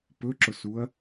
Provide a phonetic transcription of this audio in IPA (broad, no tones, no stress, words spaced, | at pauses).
pɵǁʊsuɐ̯